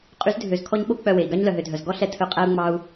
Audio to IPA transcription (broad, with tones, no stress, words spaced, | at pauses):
qʼy˨˦zdʱø˨zkʰɔ˧ɲ ɓo˦ k͡pœ˦˨we˨i̯ ɡɑ˦ɲlœ˨ɦø˨dʱœ˨z ɡɔ˦ɬɛ˧ tʰɵ˨˦qʼæ˧u̯ŋ͡mɑ˧u̯